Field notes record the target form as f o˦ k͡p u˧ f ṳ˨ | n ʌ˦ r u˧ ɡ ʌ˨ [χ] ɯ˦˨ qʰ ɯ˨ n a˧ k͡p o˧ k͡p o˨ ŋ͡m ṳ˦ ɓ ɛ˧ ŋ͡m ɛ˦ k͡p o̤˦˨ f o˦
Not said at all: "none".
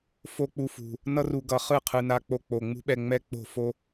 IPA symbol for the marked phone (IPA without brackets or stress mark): χ